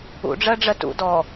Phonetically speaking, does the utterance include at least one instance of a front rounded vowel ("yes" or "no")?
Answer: no